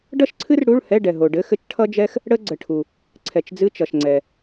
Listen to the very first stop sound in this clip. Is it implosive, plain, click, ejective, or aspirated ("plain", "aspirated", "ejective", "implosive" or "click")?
plain